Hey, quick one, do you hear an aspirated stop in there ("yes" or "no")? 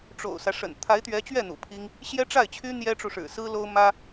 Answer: yes